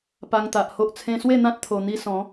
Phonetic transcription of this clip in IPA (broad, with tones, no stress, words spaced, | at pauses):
pa˧ŋt̪a˨ʔho˦ʔ t͡sʰẽ˧swe˥˧n̪ã˦t̚ t̪ʰo˧n̪i˦ sɔ̃˨˦